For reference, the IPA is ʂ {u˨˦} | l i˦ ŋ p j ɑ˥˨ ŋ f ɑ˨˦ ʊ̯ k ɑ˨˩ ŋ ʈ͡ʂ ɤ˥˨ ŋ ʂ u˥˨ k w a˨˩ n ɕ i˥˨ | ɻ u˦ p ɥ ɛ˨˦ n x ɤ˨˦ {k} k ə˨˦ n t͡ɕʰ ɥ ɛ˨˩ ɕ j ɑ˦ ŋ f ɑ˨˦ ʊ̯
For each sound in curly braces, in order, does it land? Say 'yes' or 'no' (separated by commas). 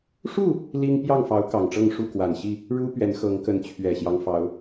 no, no